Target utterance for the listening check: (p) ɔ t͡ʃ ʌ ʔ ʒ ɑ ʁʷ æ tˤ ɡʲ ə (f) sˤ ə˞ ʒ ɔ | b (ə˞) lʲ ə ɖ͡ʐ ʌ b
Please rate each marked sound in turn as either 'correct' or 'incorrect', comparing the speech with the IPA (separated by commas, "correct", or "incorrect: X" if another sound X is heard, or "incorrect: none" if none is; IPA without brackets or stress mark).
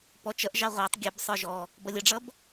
correct, incorrect: b, incorrect: ʌ